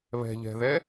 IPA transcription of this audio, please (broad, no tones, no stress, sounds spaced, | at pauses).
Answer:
β ɛ̤ ʎ ɛ̤ ð ɛ